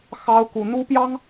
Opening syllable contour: high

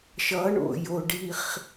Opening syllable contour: rising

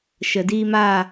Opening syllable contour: low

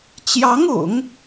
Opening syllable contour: rising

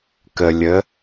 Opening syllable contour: low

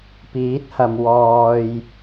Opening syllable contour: rising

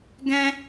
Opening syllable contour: high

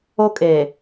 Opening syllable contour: high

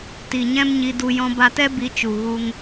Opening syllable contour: low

